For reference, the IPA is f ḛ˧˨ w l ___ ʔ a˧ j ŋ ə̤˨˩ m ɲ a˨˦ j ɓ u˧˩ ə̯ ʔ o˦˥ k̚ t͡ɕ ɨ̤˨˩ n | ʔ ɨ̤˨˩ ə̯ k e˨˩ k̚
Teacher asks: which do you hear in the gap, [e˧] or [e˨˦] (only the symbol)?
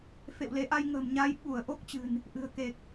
e˨˦